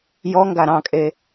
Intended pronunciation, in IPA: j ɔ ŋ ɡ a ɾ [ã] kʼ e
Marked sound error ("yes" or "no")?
yes